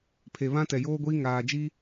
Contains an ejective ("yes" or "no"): no